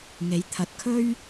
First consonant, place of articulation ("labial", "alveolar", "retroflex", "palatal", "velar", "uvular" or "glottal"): velar